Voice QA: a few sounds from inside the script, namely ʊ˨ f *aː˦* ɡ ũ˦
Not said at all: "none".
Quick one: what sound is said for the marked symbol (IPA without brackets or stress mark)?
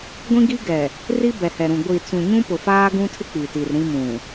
aː˦